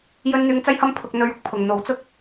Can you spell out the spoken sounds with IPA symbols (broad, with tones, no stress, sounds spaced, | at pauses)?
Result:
j ɵ˥ n n̪ yː˧ ŋ t͡s ɐ˥ j h ɐ˥ m pʰ ʊ˨ k̚ n̪ ɵ˨˧ ɥ ʊ˨˥ k̚ pʰ ʊ˨ ŋ n̪ o˨˥ w t͡s ʊ˥ k̚